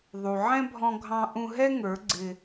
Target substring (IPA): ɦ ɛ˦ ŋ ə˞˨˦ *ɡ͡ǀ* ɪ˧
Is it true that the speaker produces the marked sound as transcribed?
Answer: yes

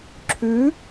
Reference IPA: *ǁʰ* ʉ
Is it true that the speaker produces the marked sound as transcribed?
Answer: yes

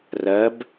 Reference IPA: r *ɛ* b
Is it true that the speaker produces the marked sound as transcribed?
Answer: no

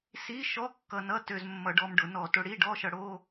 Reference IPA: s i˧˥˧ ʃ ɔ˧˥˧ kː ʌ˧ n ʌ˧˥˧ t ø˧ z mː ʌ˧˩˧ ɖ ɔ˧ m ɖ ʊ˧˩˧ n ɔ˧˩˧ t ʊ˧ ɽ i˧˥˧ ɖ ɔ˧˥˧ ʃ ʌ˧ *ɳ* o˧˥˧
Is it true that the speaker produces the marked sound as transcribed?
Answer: no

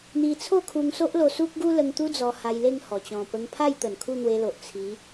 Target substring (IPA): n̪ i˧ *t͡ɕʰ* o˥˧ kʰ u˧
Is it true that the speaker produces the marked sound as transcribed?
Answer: no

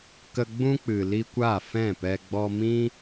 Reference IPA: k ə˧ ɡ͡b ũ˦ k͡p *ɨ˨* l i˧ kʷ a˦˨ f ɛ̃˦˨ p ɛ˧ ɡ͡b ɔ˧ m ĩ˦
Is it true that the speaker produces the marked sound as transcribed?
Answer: yes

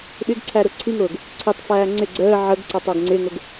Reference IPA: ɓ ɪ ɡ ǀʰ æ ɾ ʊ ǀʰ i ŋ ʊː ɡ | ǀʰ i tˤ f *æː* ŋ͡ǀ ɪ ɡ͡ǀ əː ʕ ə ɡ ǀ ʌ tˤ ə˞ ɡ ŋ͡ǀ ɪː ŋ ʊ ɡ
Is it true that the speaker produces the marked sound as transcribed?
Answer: yes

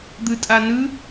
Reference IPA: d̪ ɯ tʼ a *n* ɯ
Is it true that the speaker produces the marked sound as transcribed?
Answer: yes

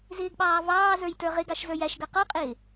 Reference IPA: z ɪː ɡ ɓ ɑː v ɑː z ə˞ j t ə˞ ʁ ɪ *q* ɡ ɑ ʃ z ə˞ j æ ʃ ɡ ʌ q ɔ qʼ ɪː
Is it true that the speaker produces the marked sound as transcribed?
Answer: no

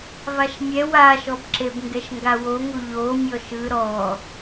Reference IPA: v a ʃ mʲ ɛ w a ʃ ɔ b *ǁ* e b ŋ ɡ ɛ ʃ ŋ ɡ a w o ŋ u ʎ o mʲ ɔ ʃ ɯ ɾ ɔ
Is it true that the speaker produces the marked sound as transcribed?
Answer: yes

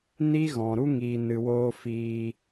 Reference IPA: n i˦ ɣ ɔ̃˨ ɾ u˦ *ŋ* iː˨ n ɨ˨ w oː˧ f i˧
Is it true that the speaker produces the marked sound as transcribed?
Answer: yes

